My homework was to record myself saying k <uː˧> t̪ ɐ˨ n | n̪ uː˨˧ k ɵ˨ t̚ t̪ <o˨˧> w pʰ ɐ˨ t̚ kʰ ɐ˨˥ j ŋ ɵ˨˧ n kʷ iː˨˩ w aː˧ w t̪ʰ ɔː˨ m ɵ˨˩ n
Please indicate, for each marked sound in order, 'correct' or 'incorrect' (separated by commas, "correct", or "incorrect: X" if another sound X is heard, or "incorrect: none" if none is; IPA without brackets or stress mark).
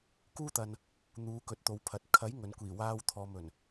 correct, correct